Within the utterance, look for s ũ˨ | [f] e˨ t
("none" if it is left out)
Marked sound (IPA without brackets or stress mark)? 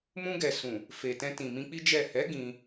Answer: f